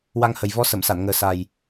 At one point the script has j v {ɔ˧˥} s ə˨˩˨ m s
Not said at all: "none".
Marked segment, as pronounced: ɔ˧˥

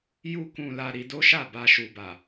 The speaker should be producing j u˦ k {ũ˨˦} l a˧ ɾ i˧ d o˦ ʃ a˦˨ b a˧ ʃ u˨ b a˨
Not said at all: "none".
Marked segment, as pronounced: ũ˧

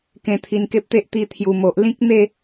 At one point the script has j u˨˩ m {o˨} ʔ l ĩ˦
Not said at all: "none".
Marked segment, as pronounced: o˨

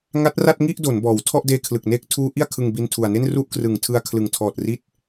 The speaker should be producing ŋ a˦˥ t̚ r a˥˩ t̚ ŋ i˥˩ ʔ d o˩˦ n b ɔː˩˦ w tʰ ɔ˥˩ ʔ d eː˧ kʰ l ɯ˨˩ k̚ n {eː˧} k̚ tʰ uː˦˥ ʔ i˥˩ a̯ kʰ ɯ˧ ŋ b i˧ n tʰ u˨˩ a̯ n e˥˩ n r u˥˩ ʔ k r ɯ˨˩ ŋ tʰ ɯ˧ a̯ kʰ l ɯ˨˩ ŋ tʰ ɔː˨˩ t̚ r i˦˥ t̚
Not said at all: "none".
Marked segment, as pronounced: eː˦˥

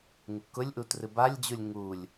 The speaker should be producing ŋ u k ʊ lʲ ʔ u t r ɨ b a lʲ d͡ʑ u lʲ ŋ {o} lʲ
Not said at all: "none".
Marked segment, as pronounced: u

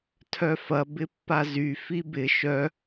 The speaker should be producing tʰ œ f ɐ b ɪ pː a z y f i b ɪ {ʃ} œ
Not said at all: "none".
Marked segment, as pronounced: ʃ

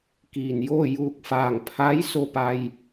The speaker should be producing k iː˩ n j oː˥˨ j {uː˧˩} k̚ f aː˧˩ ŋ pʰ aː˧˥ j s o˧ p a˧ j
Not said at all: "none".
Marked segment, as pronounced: uː˧˩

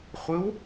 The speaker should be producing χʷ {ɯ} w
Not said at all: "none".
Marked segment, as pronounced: ɯ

